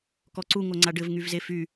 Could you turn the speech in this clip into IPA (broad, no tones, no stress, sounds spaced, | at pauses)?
k ɔ ǀ u ŋ o ŋ͡ǀ a ɖ ɘ v ŋ y v z e f y